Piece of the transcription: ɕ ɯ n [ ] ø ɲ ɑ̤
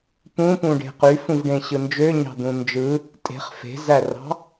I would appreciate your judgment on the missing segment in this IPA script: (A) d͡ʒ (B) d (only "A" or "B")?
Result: A